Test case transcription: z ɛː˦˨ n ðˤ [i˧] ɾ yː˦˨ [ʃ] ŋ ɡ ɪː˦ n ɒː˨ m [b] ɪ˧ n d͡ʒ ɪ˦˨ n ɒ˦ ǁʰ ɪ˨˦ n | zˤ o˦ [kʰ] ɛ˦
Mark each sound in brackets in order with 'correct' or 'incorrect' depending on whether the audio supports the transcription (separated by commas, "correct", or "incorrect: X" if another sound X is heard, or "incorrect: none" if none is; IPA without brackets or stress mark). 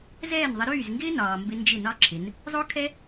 incorrect: ɪ˧, incorrect: z, correct, correct